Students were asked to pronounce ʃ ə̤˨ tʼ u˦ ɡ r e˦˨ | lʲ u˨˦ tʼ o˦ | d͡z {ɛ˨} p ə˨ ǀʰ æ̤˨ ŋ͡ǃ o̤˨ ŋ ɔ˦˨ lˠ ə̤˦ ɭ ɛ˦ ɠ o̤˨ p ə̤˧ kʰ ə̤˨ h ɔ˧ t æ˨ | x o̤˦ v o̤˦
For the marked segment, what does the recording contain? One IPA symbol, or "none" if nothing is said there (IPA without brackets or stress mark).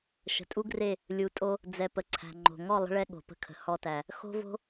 ɛ˨